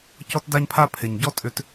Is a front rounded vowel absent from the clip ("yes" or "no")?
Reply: no